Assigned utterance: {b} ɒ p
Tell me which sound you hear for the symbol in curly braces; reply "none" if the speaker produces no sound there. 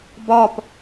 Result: b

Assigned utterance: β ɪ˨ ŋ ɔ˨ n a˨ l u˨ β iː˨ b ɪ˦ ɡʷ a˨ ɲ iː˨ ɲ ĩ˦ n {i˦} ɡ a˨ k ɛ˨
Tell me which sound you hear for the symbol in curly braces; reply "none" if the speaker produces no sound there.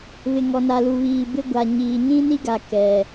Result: i˦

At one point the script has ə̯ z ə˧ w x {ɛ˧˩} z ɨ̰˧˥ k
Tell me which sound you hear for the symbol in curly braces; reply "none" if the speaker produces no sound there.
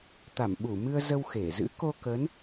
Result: e˧˩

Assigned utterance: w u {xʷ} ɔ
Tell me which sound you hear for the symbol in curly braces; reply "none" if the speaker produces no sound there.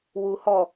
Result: h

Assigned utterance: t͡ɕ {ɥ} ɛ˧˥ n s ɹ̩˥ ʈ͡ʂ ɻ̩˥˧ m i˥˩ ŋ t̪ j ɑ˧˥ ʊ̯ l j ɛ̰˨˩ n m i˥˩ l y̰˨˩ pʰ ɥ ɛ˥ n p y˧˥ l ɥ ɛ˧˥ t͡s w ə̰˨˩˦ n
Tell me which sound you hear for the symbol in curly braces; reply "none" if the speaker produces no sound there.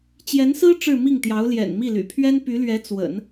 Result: j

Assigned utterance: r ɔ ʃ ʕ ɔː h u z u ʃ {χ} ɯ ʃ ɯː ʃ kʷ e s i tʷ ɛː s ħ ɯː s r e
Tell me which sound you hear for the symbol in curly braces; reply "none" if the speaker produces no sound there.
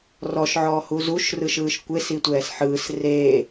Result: r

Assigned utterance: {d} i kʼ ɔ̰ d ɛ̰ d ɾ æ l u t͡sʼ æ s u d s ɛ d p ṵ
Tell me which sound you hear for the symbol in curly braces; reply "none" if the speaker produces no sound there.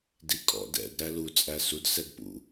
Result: d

